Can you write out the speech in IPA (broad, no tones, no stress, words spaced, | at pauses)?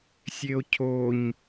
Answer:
sʲeo̯cʰoɲ